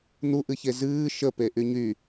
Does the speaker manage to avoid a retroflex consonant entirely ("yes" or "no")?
yes